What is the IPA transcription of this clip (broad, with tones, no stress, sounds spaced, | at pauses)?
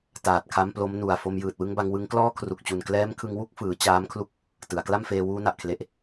t aː˨˩ t̚ kʰ a˦˥ m p l o˦˥ m n u˨˩ a̯ f o˧ m j ɯː˨˩ t̚ w ɯ˦˥ ŋ b a˧ ŋ w ɯ˦˥ ŋ k l ɔː˥˩ kʰ r u˨˩ k̚ t͡ɕ u˨˩ n k l ɛː˦˥ m kʰ ɯ˧ ŋ w u˥˩ k̚ f ɯː˩˦ t͡ɕ aː˦˥ m kʰ l u˥˩ k̚ | t ɯ˩˦ a̯ k l a˥˩ m f eː˧ w uː˦˥ n a˨˩ ʔ kʰ l e˨˩ ʔ